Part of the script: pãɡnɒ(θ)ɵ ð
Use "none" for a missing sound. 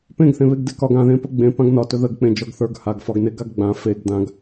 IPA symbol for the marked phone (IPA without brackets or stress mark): t